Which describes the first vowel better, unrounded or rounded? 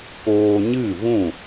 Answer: rounded